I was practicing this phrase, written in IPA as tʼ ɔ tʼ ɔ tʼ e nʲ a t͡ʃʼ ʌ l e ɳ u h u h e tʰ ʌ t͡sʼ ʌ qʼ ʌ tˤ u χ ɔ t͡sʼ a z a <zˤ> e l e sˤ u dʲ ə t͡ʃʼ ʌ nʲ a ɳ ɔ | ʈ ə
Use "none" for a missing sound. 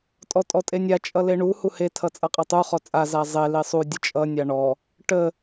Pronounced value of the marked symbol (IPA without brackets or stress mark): zˤ